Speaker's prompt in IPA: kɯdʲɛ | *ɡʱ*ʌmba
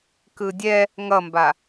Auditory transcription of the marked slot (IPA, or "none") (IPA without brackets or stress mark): ŋ